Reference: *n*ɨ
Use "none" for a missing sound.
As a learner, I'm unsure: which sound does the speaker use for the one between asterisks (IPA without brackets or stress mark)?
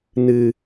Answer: n